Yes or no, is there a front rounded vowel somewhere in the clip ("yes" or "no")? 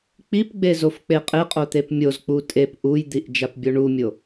no